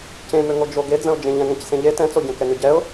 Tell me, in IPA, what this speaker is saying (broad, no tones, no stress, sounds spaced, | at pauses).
c ẽ m ø ŋ o d͡ʒ o ɡ e d͡z ə̃ ʊ̯ d͡ʒ ẽ ʎ ɛ̃ ŋ ɛ̃ c s ẽ ʎ e t ɛ̃ t͡s o ɟ ɛ̃ k ɛ ŋ ø ɟ ɛ ʊ̯